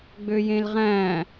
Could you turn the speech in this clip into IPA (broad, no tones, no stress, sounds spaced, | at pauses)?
ɡ͡b ø j ẽ l ʁ æ̃ː